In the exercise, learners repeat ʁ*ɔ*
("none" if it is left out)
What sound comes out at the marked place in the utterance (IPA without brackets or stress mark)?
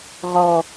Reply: ɔ